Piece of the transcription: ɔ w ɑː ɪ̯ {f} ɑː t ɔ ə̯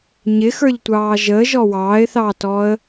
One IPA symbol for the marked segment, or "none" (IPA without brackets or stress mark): θ